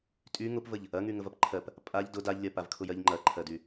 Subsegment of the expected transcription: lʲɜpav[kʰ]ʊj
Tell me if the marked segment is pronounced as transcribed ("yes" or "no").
yes